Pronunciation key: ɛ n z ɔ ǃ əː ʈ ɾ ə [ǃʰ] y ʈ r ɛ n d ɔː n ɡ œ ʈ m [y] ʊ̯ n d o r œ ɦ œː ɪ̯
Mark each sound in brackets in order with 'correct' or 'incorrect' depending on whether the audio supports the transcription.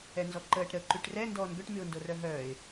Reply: incorrect, correct

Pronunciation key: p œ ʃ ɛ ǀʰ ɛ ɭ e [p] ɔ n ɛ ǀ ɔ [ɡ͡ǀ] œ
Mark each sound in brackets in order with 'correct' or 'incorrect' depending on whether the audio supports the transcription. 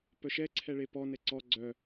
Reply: correct, correct

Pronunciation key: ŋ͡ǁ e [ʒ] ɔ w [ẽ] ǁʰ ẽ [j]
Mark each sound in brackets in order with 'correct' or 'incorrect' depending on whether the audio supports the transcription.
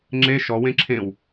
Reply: incorrect, correct, incorrect

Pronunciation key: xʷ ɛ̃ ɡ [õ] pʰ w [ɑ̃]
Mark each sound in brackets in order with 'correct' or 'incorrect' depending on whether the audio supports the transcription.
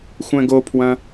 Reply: incorrect, incorrect

